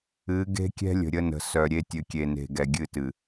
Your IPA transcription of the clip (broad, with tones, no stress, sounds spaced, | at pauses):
ɨ˨˦ ɡ e̤˦ kʲ ɛ̤˦ lʲ ə̤˨ ɾʲ ə˦ n ə̤˨ s œ˨ ɾʲ e˦ tʲ ɨ˨ kʲ e˨ n e̤˨ ɡ ɛ˨ ɡʲ ɨ˦˨ t ɨ˨